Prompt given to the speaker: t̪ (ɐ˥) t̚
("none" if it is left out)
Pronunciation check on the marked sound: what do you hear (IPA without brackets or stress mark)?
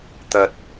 ɐ˨